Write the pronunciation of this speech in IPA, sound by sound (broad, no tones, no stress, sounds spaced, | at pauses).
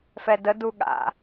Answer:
f ɛ d ə d u ɠ a̰